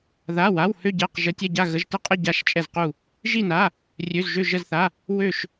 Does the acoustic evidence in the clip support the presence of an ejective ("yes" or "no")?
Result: yes